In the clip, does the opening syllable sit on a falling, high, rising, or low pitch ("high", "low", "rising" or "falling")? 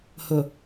low